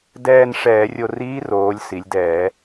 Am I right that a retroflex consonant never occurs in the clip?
no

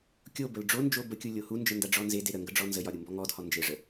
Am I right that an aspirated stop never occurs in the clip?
yes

